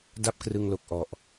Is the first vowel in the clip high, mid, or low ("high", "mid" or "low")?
low